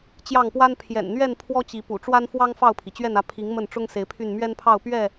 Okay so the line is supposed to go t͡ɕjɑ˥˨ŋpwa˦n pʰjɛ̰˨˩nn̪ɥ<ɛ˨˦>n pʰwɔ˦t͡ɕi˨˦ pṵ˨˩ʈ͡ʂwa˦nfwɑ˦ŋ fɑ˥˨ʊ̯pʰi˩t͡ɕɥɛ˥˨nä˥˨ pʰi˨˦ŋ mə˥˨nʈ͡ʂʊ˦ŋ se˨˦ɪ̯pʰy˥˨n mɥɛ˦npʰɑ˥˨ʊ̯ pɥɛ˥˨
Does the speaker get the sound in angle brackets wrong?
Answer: yes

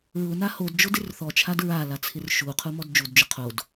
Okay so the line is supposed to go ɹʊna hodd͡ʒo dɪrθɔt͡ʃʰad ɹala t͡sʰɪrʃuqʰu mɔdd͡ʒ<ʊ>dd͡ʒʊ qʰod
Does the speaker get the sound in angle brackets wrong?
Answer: yes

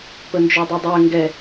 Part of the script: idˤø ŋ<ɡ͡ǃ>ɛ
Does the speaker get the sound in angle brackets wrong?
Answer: yes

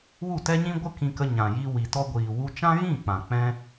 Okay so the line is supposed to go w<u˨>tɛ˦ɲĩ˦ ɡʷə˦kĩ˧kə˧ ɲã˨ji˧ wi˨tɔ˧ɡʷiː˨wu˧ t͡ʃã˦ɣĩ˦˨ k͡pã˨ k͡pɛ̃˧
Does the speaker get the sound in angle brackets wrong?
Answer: yes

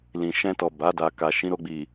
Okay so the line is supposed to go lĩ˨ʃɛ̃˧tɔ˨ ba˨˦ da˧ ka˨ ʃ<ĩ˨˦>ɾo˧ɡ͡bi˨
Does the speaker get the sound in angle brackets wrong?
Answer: no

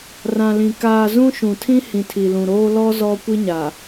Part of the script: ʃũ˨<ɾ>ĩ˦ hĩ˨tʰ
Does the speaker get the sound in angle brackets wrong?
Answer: yes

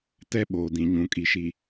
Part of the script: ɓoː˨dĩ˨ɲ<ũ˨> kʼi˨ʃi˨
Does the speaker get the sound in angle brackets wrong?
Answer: no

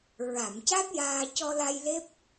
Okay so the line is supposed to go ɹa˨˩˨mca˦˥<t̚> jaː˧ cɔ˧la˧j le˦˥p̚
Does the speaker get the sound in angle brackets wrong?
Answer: no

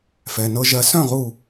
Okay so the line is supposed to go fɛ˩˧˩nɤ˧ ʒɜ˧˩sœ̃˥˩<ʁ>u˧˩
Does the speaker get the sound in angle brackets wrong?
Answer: no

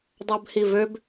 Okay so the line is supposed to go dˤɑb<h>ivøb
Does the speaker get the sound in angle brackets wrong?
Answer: no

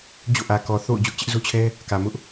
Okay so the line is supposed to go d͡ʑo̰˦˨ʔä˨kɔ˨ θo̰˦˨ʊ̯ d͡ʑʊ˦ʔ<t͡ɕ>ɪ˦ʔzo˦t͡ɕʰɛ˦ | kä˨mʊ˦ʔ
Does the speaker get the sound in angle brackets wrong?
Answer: no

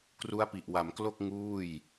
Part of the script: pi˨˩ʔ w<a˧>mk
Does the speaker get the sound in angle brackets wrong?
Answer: yes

